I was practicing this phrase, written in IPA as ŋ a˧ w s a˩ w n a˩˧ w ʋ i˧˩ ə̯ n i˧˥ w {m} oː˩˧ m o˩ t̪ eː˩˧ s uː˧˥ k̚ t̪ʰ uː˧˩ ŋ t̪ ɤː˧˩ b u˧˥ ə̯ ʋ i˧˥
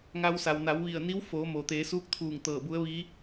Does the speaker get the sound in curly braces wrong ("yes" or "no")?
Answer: yes